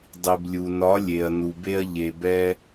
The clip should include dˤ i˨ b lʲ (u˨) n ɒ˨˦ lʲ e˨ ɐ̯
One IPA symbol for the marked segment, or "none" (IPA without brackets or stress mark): u˨